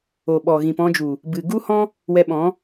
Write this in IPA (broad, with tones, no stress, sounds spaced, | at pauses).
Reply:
o˨ ɓ ɔ˨ ɣ ĩ˨ p ɔ̃˧ d͡ʒ u˨ | b ɨ˨ ɡ u˦ h ɔ̃˦ | w ɛ˧ ɓ ɔ̃˨˦